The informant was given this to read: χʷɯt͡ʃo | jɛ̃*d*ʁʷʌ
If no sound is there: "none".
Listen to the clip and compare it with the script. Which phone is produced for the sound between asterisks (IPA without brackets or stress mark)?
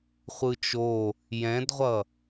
d